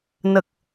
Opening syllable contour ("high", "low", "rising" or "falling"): low